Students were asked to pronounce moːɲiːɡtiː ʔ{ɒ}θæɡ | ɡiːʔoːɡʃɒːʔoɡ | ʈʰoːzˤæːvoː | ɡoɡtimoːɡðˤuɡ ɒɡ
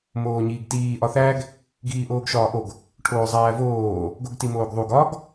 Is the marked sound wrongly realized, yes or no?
no